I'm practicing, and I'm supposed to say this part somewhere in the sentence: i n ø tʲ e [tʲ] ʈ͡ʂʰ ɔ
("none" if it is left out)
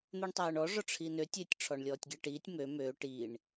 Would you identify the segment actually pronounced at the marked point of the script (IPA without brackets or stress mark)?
tʲ